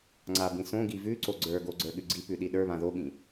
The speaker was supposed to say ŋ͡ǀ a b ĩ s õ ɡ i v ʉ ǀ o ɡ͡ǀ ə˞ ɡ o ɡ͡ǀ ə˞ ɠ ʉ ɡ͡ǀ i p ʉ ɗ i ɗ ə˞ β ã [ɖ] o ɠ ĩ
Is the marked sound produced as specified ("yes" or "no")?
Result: no